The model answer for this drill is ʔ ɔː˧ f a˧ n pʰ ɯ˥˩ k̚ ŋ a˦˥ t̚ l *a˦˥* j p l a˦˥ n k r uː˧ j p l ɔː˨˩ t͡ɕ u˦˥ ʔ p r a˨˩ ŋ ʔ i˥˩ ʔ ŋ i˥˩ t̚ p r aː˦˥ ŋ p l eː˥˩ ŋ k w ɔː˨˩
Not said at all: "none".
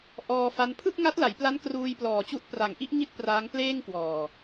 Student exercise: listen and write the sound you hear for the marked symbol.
a˩˦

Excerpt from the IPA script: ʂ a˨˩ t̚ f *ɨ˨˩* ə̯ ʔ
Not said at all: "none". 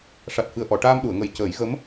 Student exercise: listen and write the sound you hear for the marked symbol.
ɨ˨˩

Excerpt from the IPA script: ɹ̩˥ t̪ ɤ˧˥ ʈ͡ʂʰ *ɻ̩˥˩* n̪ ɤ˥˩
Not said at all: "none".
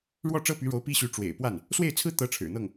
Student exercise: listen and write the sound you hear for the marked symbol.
ɻ̩˨˩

